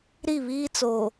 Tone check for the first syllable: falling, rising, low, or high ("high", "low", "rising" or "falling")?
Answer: falling